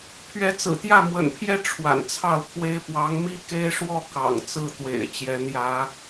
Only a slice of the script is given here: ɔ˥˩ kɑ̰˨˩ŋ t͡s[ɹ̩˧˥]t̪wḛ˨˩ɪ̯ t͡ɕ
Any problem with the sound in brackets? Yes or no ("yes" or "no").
yes